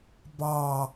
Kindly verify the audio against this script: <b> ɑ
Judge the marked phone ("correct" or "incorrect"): correct